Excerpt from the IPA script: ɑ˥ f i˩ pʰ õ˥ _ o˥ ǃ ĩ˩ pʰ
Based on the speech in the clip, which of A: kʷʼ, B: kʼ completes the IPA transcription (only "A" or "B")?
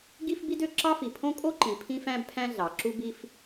B